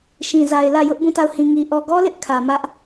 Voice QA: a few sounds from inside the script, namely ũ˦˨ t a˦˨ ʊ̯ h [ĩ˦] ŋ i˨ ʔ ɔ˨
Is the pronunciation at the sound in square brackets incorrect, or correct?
incorrect